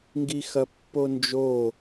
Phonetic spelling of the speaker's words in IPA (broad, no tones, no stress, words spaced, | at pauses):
ŋɡixɐpːond͡ʒo